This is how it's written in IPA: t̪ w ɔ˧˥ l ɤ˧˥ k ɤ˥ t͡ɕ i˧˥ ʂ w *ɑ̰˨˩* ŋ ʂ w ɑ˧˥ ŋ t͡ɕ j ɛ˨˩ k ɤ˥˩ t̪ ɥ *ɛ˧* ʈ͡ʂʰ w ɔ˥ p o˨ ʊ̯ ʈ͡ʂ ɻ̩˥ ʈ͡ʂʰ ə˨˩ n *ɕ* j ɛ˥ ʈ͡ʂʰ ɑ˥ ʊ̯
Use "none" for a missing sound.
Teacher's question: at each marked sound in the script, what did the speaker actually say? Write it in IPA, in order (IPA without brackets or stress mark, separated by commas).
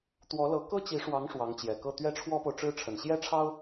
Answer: ɑ˧˥, ɛ˥, ɕ